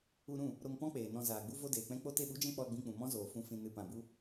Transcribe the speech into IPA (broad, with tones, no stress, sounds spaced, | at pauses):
u˧ ɾ ũ˦˨ | ɾ o˧ ŋ p ɔ̃˦ k͡p eː˨ n ɔ̃˧ z aː˨ ɡ͡b u˦ v o˦ d eː˨ k͡p ɛ̃˦ k͡p o˧ t e˧ ɓ u˨˦ d͡ʒ ɛ̃˧ k͡p ɔ˧ l ɡ͡b ĩ˧ k͡p ũ˨ m ɔ̃˦ z oː˨ f ũ˨ f ĩ˨ n ɨ˨ p ã˨ b u˦